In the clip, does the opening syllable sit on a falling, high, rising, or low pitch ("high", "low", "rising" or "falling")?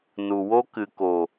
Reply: low